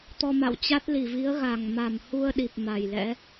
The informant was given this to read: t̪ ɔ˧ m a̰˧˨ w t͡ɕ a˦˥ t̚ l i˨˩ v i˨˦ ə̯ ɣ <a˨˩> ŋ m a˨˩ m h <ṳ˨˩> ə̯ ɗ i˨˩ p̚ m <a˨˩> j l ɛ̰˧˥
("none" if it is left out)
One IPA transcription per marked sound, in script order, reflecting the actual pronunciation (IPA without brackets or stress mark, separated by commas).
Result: a˨˩, u˧, a˨˩